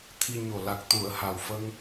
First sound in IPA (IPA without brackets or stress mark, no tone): t̪ʰ